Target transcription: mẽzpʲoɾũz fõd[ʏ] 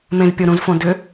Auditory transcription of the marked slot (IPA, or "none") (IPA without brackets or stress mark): ʏ